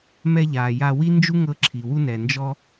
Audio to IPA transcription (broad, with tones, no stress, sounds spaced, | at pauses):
m ɛ˧ ʎ aː˩ j a˧ w i˥ n d͡ʒ u˥ ŋ ɤ˧ ǁʰ i˩ w u˧ n ɛ˩ n d͡ʒ ɔ˧